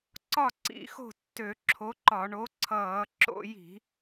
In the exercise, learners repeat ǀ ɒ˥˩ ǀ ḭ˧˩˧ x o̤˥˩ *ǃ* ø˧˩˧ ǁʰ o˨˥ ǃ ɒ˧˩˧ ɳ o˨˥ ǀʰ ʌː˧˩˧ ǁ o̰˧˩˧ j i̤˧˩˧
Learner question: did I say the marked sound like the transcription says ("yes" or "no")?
no